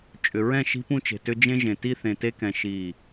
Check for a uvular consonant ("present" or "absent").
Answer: absent